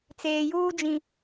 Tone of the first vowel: low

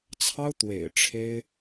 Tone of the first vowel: high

